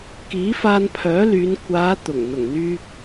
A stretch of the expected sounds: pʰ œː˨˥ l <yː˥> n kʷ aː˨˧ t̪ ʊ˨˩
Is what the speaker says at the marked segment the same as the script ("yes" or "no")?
no